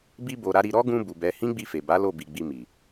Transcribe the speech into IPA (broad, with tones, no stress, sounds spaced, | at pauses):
b i˧ b o˨ ɾ a˨˦ ɾ i˧ ɾ ɔ˦ ɡ ũ˧ b u˨ b ɛ˨˦ h ĩ˦ ɡ͡b i˧ f e˨ b a˨˦ l o˦˨ b i˨ ɡ͡b i˧ m i˨